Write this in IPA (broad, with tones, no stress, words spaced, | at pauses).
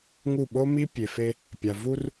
ŋu˦˨ ɓo˦mi˦ pʲe˨fe˦ | pʲa˨ vu˦r